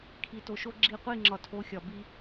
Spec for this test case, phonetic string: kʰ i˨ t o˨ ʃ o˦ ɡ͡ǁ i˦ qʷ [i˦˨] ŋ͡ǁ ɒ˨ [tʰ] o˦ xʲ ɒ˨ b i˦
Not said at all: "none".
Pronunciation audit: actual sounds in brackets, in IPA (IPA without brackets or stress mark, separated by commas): i˦˨, tʰ